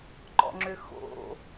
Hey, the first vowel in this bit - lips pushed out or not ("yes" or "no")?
yes